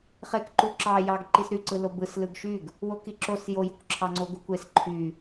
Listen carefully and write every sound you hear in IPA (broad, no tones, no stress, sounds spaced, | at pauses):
χ e k ǃ u ǁ ɑ j ɑ ɡ ǃ i s ɾ y ǀ ɯ l o b ɯ s l ɯ ɡ ʃ y ɡ | w o k i ǁ o s j o j u k ǁʰ ɑ ŋ͡ǀ o ɡ u kʷ e s ǃʰ y